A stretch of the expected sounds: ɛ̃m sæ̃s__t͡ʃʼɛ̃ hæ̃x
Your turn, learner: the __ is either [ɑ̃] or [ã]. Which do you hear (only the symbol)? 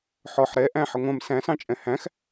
ɑ̃